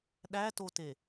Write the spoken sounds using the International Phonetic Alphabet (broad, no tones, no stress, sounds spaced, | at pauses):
ɗ æ t o t e